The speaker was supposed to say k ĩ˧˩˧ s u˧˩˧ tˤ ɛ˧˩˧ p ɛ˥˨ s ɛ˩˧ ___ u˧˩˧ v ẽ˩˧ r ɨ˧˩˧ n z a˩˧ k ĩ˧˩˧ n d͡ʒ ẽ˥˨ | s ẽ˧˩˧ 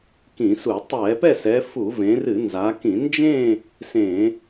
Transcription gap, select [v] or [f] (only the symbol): f